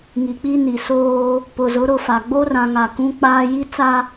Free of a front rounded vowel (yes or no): yes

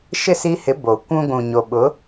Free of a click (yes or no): yes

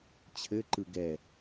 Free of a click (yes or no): no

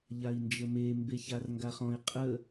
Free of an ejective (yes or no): no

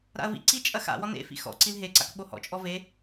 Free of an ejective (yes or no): no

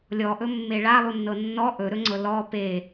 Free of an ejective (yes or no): yes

